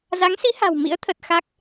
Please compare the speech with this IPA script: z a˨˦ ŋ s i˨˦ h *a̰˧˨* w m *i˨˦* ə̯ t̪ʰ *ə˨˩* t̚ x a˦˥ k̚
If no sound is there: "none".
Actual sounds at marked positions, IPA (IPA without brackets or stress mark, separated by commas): a̤˨˩, ḭ˧˥, ə˨˩